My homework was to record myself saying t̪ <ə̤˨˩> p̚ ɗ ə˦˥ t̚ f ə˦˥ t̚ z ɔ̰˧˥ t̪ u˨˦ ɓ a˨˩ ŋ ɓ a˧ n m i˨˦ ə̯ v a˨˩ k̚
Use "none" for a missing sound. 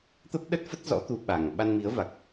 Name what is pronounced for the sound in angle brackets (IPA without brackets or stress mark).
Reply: ə˦˥